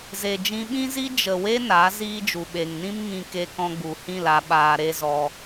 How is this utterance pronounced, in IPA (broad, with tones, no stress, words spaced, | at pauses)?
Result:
ze˨d͡ʒĩ˧ɓĩ˦zi˦ d͡ʒə˨we˦ na˨˦ ziː˦d͡ʒu˨ ɓe˨ŋnĩ˦m ŋĩ˧ ke˦ kɔ̃˧ɡ͡bu˨hĩ˦˨l a˧ɓaː˧ ɾe˦zɔ˧